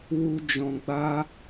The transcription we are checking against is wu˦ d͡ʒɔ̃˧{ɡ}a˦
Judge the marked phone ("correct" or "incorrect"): incorrect